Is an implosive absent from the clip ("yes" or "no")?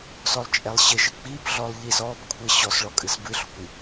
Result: yes